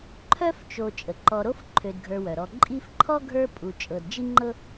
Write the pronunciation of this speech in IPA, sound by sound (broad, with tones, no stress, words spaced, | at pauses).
ǃʰœ˦ft͡ʃo˨ t͡ʃʼə˩ǃɔ˨ɾo˦f ǃʰø˨dɡʱə˞˨wœ˩ɾɔ˨ ǃʼi˦fǃʰɔ˥ɡʱə˞˦ pʼu˨ t͡ʃʼɤ˨dd͡ʒi˥ŋ͡ǃɤ˥